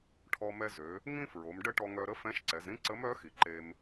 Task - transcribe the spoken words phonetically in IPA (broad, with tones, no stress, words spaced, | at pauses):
ʈʰɔ˧ mɛ˧zø˩˧ | ŋĩ˥fɹo˩˧m ɖə˥ʈɔ˧ŋœ˧ɾə˥ fɛ̃˧˥ʃǀɛ˩˧zɾĩ˥ ǀə˧˥mœ˧˥xi˩ ǃe˧m